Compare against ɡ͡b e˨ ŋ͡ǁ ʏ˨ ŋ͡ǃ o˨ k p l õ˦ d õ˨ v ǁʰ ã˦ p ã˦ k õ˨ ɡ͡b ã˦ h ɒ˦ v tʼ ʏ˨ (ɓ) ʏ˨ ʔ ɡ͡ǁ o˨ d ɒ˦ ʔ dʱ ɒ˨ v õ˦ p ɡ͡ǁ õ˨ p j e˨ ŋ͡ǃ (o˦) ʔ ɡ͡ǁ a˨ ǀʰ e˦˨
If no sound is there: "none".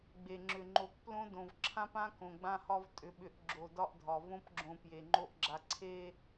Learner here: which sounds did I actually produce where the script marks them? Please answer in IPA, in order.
ɓ, o˦

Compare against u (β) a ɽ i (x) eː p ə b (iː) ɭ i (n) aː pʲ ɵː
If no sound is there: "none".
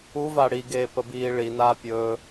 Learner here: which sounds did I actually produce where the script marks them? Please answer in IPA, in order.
v, ɡ, iː, n

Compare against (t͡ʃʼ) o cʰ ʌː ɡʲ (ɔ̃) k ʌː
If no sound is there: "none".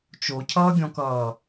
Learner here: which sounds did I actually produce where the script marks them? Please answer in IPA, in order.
t͡ʃ, ɔ̃

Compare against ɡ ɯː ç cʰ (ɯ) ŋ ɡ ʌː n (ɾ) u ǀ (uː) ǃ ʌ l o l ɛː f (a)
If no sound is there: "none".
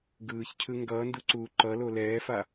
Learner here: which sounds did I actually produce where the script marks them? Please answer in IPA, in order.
ɯ, d, uː, a

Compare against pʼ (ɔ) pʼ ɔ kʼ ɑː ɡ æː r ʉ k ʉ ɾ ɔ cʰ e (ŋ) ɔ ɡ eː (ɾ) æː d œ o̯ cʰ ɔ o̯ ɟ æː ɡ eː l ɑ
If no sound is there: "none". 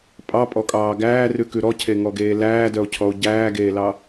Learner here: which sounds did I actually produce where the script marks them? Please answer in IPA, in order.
ɑ, ŋ, l

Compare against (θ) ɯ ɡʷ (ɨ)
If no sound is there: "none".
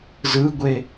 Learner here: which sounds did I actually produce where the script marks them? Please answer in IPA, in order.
z, e

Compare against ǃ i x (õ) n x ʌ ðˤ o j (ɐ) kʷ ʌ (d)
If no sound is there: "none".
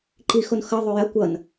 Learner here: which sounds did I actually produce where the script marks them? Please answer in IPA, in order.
o, ɐ, n

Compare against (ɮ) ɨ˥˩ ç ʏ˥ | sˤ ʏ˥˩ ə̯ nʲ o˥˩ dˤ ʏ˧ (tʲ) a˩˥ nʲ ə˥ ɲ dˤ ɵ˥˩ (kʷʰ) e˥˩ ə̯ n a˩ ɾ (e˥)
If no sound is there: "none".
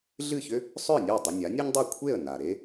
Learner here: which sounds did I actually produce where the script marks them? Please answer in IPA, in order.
ɮ, nʲ, kʷʰ, e˥

